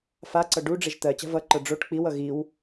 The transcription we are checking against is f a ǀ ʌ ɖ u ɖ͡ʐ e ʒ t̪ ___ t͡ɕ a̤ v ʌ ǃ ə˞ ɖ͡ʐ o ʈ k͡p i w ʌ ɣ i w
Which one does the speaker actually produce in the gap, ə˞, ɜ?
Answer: ɜ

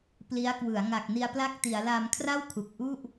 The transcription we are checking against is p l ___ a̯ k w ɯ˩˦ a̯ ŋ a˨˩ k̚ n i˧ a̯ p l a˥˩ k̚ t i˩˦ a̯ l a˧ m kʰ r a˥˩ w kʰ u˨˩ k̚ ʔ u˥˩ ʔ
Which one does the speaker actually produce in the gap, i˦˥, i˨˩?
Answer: i˦˥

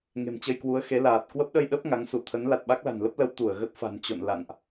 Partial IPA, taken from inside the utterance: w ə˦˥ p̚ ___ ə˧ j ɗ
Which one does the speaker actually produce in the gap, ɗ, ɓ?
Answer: ɗ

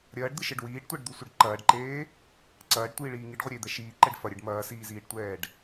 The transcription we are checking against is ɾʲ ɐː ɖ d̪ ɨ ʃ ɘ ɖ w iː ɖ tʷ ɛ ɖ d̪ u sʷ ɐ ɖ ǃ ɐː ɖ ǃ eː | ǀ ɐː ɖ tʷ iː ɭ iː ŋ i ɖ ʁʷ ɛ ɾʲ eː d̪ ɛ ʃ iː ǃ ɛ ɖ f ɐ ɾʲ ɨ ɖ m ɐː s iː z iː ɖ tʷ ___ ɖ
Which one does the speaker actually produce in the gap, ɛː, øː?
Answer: ɛː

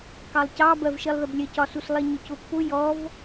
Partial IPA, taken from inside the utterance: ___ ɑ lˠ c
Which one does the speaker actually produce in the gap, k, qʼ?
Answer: k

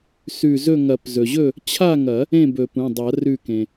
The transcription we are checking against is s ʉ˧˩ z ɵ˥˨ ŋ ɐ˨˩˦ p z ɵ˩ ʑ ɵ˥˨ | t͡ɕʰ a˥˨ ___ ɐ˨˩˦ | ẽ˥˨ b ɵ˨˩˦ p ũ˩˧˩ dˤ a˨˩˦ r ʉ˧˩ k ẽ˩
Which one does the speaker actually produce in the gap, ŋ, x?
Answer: ŋ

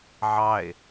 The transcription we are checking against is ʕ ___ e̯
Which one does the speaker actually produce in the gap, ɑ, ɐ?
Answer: ɑ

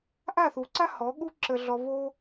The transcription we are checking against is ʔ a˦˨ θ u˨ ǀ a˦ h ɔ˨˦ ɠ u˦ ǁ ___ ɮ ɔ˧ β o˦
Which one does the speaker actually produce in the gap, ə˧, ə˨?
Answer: ə˧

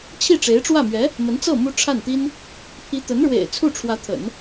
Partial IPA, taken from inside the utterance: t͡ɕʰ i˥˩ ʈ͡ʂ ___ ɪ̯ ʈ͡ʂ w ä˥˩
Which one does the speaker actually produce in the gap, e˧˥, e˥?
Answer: e˧˥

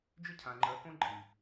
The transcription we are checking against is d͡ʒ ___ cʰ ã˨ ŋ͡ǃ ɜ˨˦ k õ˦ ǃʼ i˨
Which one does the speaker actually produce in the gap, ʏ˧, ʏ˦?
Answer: ʏ˦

